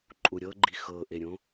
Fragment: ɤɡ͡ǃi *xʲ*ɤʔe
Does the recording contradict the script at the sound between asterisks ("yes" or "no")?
yes